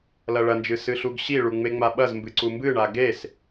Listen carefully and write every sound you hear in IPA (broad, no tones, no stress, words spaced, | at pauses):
lɐɭɐnd͡ʒɨ sɨɬuɡɕiɭu ŋ͡meŋ͡maɓɐzmbɨ ǀumbɨɳa ɡes